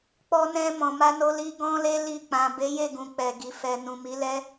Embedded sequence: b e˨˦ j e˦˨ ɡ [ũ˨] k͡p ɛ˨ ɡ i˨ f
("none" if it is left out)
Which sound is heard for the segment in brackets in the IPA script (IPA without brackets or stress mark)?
ũ˨